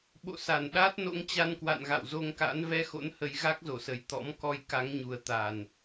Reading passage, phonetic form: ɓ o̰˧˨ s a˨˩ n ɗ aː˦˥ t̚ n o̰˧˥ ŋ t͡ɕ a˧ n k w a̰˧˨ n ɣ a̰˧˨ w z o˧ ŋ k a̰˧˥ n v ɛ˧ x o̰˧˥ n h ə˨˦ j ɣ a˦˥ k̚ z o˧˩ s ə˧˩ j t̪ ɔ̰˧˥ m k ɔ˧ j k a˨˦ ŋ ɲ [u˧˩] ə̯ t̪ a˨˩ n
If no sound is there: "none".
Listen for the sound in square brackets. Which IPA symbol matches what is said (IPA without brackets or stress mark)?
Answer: u˨˩